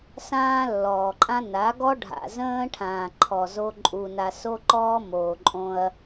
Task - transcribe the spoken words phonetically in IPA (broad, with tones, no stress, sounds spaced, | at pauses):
s ãː˦ lː ɔː˨ ǃʼ ã˦ n a˨˦ ɡ ɔ˦ ɖʱ a̰˨ z ə̃ː˦ ʈʰ ãː˨ ǃʰ ɔ˨ z o˦ ǃʼ u˨ n a˨ s o˦ ǃ ɔː˦ m oː˨ ǃʼ õ˦ ɐ̯